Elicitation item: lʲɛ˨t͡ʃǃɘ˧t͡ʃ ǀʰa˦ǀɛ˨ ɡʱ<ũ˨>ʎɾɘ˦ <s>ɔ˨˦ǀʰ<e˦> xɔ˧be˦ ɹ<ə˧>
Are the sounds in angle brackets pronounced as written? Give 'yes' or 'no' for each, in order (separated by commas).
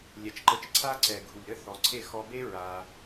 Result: no, no, no, no